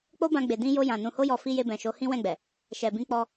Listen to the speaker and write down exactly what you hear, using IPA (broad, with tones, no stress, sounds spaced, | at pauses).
k͡p o˦ b ã˧ ɡ͡b e˨ d ĩ˧ j o˧ j ã˨ n ũ˨ h o˧ j ɔ˨ f i˧ j e˧ b ɛ̃˨ ʃ o˨˦ h ĩ˦ w ɛ̃˦˨ ɡ͡b ɛ˨ | ʃ ɛ˨ b ĩ˧ k͡p ɔ˧